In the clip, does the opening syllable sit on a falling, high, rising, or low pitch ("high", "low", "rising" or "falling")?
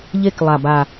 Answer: falling